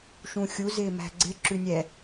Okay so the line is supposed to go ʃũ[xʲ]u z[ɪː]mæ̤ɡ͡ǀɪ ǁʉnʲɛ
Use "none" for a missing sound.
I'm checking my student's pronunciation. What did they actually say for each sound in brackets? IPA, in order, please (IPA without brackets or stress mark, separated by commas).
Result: xʲ, ɪː